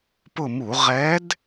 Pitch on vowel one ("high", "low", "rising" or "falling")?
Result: falling